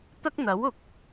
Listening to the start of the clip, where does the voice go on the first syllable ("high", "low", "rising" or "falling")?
high